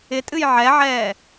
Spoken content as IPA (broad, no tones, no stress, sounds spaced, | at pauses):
ɪ tʼ ɨ j ʕ ɛ ʕ ɛː